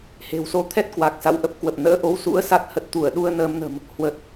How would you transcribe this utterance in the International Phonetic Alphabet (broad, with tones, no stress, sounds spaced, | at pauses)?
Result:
h e̤˨˩ w s o˨˦ t̪ʰ ɛ˦˥ t̚ k w a˨˩ k̚ s a̰˧˨ w ʔ ə˦˥ p̚ k w ə˨˩ p̚ n ə̰ː˧˥ ʔ o˨˦ w s ṵ˧˥ ə̯ s a˦˥ t̚ h ə˨˩ t̚ t̪ u˧˩ ə̯ ɗ u˧ ə̯ n əː˧ m n ə̤˨˩ m | h w ə˨˩ t̚